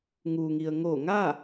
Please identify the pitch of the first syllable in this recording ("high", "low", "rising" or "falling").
low